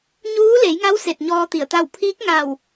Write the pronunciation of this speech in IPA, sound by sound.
ɲuː˧˥le˩˧jŋa˧˥w se˧˩t̚ɲɔː˧ t̪i˧˩ə̯t̪a˥˨w pʰiː˧˥k̚ŋa˧˩w

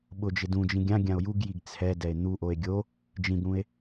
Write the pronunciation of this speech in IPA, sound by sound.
ɓʊd͡ʒɪ dũd͡ʒĩ ɡʲã ɡʲão̯juɡjiɡ t͡sʰɛ dɛe̯n̪uʔoe̯ ɡʲo | d͡ʒĩɡɽũe̯

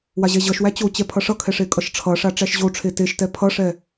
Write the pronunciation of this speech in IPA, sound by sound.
waʑɛʑʌʃwæ t͡ɕot͡ɕɛ pʰʌʂʌkʰɛ ʂekʼʌʃʈ͡ʂʰʌʂa ʈ͡ʂæʃʑoʈ͡ʂʰe teʃtɛ pʰʌʂɛ

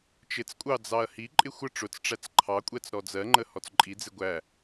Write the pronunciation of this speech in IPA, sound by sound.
t͡ʃɪt͡skʷʼɑ d͡zɑɐ̯hiǃʼɪ xʷə ʈ͡ʂʊt͡sʈ͡ʂæt͡s ǃʰɑkʷʼɛt͡s ɾɔd͡zɜŋ͡ǃə hɔt͡sǃʼid͡zɪ ɡʷæ

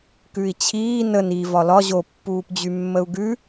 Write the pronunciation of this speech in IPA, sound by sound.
kʉi̯t͡ɕʰiː nən i vɒlɒ ʑo pːuːpd͡ʑymːəu̯ɡʉ

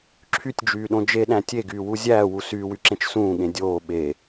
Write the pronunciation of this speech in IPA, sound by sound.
ǁʰytʲd͡ʒyːɗõ d͡ʒeɗæ̃ tʲeɡyːwu zʲæːwu syːwyǁẽt͡ʃ sũːɠẽ dʲoː ɓe

